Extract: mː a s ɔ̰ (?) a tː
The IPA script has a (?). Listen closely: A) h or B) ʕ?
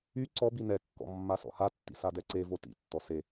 A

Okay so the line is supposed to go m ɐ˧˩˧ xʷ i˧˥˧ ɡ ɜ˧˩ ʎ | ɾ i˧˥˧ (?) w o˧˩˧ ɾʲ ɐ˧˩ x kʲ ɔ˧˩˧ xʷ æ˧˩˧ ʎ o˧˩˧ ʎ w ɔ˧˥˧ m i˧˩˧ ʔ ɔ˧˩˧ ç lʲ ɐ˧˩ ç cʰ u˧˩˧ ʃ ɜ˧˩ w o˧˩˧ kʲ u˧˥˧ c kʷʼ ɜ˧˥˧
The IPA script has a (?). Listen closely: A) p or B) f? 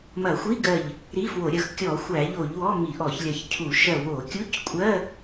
B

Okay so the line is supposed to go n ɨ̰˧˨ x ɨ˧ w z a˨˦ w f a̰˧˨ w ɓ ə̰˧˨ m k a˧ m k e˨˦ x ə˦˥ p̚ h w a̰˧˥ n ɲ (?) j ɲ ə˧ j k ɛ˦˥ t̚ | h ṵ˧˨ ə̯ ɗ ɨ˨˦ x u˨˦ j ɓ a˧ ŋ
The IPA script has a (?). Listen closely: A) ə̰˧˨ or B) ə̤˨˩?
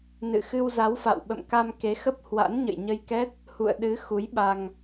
A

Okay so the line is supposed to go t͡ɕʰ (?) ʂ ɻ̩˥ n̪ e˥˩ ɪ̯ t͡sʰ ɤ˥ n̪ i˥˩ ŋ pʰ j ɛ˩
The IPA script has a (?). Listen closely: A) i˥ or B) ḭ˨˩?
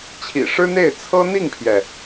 B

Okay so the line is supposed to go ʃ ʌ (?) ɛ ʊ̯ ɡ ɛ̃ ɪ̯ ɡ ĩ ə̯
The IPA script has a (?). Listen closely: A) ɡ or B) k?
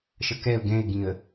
B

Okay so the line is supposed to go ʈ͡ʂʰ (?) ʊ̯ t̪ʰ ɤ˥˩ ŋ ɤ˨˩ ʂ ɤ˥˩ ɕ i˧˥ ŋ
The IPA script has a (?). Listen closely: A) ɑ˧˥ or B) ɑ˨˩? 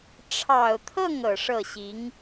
B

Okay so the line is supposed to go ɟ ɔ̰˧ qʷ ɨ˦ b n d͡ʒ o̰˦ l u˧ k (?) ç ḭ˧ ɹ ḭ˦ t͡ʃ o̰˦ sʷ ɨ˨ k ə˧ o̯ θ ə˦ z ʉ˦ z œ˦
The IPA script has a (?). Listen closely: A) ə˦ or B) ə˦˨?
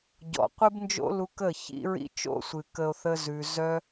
B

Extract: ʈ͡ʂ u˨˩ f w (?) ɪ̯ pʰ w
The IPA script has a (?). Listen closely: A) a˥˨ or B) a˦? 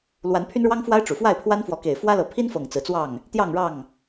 A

